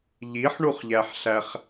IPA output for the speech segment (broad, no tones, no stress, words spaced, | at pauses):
ʎiħɳuχʎæħɬæχ